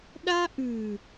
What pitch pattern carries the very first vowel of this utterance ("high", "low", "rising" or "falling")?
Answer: high